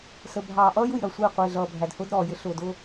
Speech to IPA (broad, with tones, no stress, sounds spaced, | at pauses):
s ə˨ bʱ ɑː˨ ʔ ʌː˦ j u˨ j ɾ ʌ˨ sʷ ɪː˦˨ qʷ ɪː˨ ɮ ʌː˨ bʱ æ˨ d h ʊː˦ d ɾ ɔː˨ j ɪ˦ ɬ ʊː˨ d ʊː˦